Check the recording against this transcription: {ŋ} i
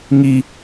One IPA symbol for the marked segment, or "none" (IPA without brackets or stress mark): ŋ